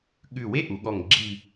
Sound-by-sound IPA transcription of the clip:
ɠʉ˧˩we˥ ʔu˩˧ɠɔ˧˩ŋ ɡ͡ǁi˥˧

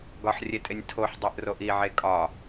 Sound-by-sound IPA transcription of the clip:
ɡɒħrʲetʼenʲ tʰoħdˤeʔroʔ iʕe kʼɒ

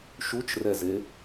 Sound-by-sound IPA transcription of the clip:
ʃut͡ʃrɛze

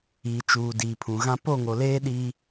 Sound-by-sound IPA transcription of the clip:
iː˨t͡ʃuː˨ diː˨pʰũ˨ɣã˦ po˦˨ŋo˨ leː˦ ɗiː˦

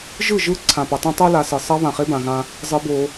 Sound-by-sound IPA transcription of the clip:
ʒɯ˦˨ʒɯ˦ ǀʰã˨pʌ˨tˤũ˦tˤo˦ la˨sɯ˨ sˤʌ˦ βã˨χe˦bã˨ɣã˦ | zˤɯ˦bo˦

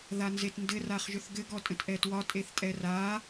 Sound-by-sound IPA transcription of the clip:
ðanzetndɘr aχʒʏθɡɘɡ ɔtʼə̃tʔɛtwɒ tʼeθtʼɛra

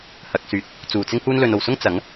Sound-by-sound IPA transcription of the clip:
hɐ˨˥k̚syː˨˥t̚ | t͡suː˨˩t͡sɪ˥ŋhuː˥n lɵ˨no˨˩wsʊ˥ŋ t͡sɐ˨˥ŋ

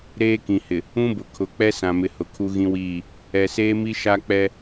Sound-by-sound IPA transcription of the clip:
ɾeː˦kĩ˨hɪ˨ | ũ˦bʊ˨ kʰʊ˨˦k͡pɛ˦sã˨mɪ˨ hʊ˨kʰu˦ɣĩ˦wiː˦˨ | ɛ˨seː˦mi˦ ʃa˦k͡pɛ˦

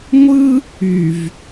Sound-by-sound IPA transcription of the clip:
ŋʷɯ˦ | y˨v

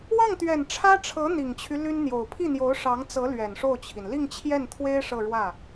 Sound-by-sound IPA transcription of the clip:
wɑ˥˩ŋt̪ɥɛ˨˩n ʈ͡ʂʰä˥ʈ͡ʂʰɤ˧˥ n̪i˨˩ŋt͡ɕʰy˦ ly˥nn̪jo˨˩ʊ̯ pʰi˥˩n̪jo˧˥ʊ̯ ʂɑ˧˥ŋt͡sɤ˧˥ lɥɛ˨˩nʂo˥˩ʊ̯t͡ɕʰi˩n li˥˧ŋt͡ɕʰjɛ˥˩nt̪ʰwe˥ɪ̯ ʂɤ˥˧ɻwä˥˩

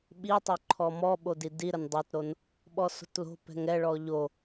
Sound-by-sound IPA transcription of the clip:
ɓitˤo ǃʰɔmɔɓodi diɾən dˤotɾon | ɓɔso̤tlo̤ pɛ̤ŋɛɭɔ ʎo

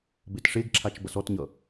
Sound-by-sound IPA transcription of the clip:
betʂeɡǁʰat͡ʃ bʌsɔtɲʌ

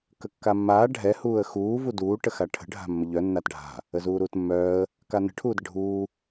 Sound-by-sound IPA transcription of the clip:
kəkːamːaː ɖʱɛ huːə̯xuː vuduː ʈəxaʈʰə̤ ɖʱa̤mːəʎœ nːatɖʱa̤ | əzuːɾuːtmːœːə̯ | kanə̤ ʈʰuːdəɖʱuː

